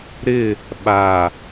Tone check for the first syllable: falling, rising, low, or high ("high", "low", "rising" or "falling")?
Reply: falling